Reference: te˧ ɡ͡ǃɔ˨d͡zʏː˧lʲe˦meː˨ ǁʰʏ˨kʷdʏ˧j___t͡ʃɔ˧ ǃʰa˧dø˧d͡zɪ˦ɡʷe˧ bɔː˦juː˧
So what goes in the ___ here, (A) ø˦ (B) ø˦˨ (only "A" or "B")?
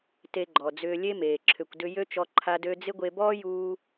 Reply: A